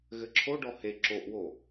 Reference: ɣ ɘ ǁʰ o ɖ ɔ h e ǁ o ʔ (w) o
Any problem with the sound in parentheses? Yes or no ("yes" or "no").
no